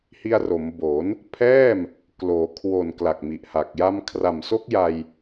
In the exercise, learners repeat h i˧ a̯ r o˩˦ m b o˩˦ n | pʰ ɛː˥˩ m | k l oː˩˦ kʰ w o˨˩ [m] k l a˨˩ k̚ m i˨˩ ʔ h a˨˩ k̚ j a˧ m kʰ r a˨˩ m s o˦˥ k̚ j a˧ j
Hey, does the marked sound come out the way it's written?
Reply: no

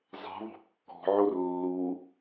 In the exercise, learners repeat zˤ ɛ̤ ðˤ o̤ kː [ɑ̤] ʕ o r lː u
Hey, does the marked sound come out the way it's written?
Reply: no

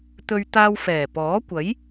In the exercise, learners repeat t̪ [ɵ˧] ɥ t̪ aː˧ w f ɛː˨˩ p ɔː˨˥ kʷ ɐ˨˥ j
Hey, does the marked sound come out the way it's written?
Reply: yes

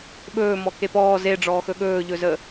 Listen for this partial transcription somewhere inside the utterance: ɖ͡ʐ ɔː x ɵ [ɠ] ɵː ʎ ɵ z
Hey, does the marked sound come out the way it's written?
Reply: yes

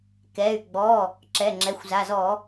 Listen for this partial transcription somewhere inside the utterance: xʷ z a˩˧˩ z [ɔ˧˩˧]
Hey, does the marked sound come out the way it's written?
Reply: yes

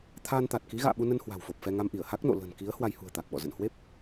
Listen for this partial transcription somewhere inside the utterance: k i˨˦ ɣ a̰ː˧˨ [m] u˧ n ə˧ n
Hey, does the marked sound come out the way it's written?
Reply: no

